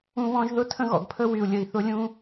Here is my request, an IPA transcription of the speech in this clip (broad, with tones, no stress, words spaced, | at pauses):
ũ˦βɔ̃˦ʒ ðʊ˦tʰə̃˦ɣɔ̰˨ɡpʰə˦ wy˨u̯lʲə˨i̯θʊ˦lʲũ˦